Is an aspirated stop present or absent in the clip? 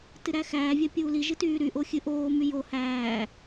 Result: absent